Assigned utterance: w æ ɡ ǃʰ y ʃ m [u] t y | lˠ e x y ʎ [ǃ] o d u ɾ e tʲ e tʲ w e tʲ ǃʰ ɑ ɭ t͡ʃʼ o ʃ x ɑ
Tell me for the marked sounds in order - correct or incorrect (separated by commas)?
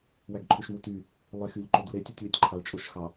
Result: correct, correct